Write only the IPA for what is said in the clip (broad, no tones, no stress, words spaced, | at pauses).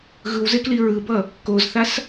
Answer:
ɣɯwzekli ɹɯbʌ | kozθas